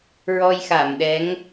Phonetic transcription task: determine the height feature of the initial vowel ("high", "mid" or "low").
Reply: mid